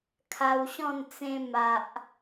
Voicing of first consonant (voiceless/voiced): voiceless